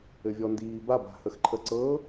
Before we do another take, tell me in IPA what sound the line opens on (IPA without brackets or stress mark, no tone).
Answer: ɘ